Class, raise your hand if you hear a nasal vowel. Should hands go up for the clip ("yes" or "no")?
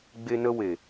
no